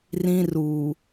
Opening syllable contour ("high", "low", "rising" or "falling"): high